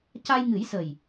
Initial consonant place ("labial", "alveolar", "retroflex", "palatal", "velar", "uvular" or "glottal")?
palatal